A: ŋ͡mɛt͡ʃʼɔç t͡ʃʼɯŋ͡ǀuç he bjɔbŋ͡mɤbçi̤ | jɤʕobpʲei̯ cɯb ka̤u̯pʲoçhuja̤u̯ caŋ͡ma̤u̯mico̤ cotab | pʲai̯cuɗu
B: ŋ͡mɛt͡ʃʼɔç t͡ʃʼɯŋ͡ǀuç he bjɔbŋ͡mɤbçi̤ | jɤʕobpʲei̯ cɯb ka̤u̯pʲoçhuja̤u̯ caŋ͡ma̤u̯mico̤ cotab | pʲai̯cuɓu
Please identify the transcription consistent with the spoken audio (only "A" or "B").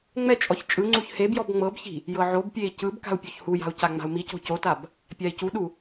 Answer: A